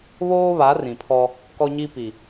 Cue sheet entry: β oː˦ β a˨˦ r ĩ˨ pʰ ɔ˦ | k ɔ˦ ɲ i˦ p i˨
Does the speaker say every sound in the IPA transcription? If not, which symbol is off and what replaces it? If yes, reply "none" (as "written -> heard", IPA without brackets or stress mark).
none